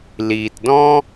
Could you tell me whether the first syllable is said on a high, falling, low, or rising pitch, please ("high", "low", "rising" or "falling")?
low